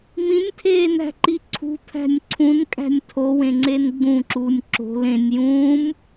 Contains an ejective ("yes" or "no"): yes